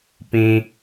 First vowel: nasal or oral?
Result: nasal